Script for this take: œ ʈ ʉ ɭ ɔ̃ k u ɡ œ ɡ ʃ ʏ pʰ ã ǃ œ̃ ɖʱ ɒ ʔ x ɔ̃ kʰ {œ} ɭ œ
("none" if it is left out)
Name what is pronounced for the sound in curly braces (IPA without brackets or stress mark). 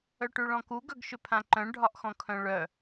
œ̃